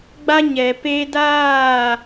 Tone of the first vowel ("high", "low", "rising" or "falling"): high